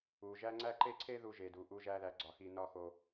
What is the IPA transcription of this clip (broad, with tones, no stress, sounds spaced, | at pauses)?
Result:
u˨ ʒ æ˦ ŋ͡ǀ æ˦ ǃ e˦ ǀʰ e˦ ð u˨ ʒ e˨ d u˨ ʔ u˦ ʒ æ˦ ð æ˨ ɡ͡ǀ ɒ˨ x i˨ n ɒ˦˨ x o˨